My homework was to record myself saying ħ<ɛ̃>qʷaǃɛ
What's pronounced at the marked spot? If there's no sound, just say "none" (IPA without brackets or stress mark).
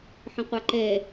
ə̃